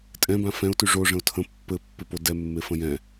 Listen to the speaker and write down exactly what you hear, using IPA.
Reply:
tʼ ɛ̃ b ã f ɛ̃ ʊ̯ t y ʐ o ʐ ə̃ ʊ̯ tʰ ə̃ pː ɘ pː ɪ p o d ɛ mː e f ə̃ j ɛ̃

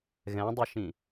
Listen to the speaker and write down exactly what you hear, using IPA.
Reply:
ɣ ɛ̃ dˤ i ʃ ĩ

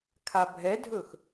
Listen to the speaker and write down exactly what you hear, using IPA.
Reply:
kʰ a bʱ ɛ dʱ ɵ x

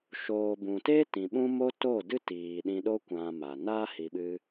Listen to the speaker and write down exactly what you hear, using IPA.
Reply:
ʃ oː˨ b ũ˨ t eː˦ t ĩ˨ ɓ ũ˦ m o˦ t o˦˨ d ɨ˦ t iː˨ ɗ ĩ˧ ɗ o˦ kʷ ã˧ m a˨ n a˦ h i˧ ɓ ɨ˦

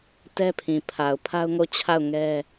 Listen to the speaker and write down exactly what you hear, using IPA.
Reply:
t ɛ˦ pʰ ĩ˨ pʰ a˨ ʊ̯ pʰ a˦ ʊ̯ ŋ o˦˨ t͡ɕʰ a˦˨ ʊ̯ ŋ ɛ˦

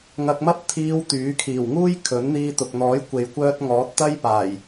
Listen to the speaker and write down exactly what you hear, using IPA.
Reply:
ŋ ɐ˧ k̚ m ɐ˥ p̚ t̪ʰ iː˧ w t̪ yː˨˥ kʰ iː˨˩ w ŋ uː˥ j kʰ ɵ˨˥ n n̪ iː˧ t̪ ʊ˨ k̚ n̪ ɔː˨˥ j kʷ e˨ j kʷ œː˧ t̚ ŋ ɔː˨˥ t̚ t̪ ɐ˥ j p aː˨˩ j

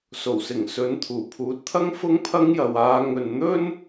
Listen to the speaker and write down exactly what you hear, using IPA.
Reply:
s o˨˩ w s ɪ˨˩ ŋ s ɵ˨˥ n t̪ʰ uː˨˩ pʰ uː˨˥ t̚ t̪ʰ ɐ˥ ŋ f ʊ˥ ŋ pʰ ɐ˥ ŋ j ɐ˨ w aː˨˧ ŋ ɵ˨ n n̪ ɵ˥ n

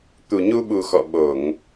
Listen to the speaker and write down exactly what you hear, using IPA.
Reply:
t̪ u˨˩ ɲ u˧ ɓ u˨˩ x ɔ̰˧˨ ɓ o˧˩˨ ŋ

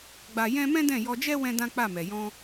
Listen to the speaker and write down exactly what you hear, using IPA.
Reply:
ɡ͡b a˦ j ɛ̃˦ m ɛ̃˦ d ɛ̃˦˨ j ɔ˧ d͡ʒ ɛ˦ w ɛ̃˦ d ã˦ k͡p a˦˨ m ɛ˨ j ɔ̃˧

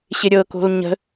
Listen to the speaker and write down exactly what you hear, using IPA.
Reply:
ɕ ɪ ɾʲ ɤ k o̤ l ɲ ə̤

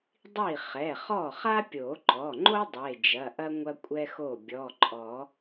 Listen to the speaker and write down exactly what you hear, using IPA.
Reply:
dˤ i˥˩ χ ɛ˩˧˩ χ ɔ˥˩ χ a˥ pʲ o˨˩˦ ǃ ɔ˩˧˩ ŋ͡ǃ o˥ dˤ e˩˧˩ d͡ʒ ɐ˩˧˩ ʔ ɐ˥ ŋʷ ɐ˥ kʷʼ ɛ˥ x o˥˩ bʲ ɔ˩˧˩ ǃʼ ɔ˨˩˦

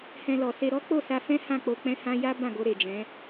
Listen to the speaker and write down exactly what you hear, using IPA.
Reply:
h ɛ̃˧ l ɔ˨ s e˧ ɾ ɔ˦ k͡p o˦˨ s a˧ f ɛ̃˦ h ã˦˨ k͡p o˧ k͡p ɛ̃˦ h ã˦ j a˦ b ã˦˨ ɡ o˧ ɾ e˨ d͡ʒ ɛ̃˨˦

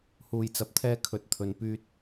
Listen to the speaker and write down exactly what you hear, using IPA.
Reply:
h uː˧ j t͡s ɐ˧ p̚ t̪ʰ ɛː˥ kʰ ɵ˨ t̚ t̪ʰ ɵ˨ n p yː˧ t̚

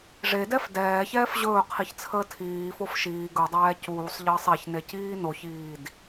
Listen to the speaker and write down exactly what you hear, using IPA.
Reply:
ʐ e d ɛ f d ɛː ç ɛː f ʑ ɵː qʰ i ç t͡sʰ əː tʰ iː f o f ʃ iː ɡ ɵ dˤ ɛː c uː sˤ ʎ əː sˤ e ç n e c iː n o ç iː d

